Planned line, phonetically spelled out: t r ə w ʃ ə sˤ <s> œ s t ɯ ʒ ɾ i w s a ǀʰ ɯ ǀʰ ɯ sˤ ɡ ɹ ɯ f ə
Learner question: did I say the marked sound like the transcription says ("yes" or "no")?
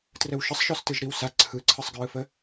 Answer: no